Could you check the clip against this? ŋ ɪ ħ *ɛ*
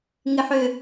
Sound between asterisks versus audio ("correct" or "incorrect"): incorrect